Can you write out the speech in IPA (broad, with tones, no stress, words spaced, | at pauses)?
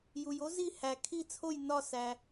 ju˩j o˦˥zi˦˨ hæ˩ kʰi˦˨t͡sʰo˦˨j nɒ˦˨sæ˩